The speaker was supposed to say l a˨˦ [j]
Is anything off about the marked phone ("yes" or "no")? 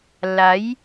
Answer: no